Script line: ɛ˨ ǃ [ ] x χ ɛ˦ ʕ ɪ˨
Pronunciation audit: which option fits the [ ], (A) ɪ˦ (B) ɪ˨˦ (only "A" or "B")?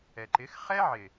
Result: B